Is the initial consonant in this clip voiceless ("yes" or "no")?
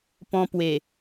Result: yes